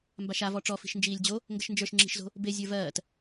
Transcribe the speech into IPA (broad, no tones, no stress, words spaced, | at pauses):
mbaʃavɔ ʈ͡ʂɔfi̤ʃ nd͡ʒiːlʲd͡ʑo | ŋɡəʃnd͡ʒə˞ʃŋ͡ǁi̤ʃzo̤ | be zʲə˞vɜːt